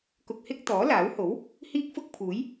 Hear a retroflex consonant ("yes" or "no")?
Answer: no